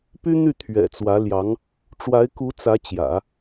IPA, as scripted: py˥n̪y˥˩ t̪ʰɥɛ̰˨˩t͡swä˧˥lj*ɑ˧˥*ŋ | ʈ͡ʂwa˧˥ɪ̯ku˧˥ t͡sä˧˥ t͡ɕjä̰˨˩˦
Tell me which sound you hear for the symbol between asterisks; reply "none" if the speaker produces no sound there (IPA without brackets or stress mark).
ɑ˧˥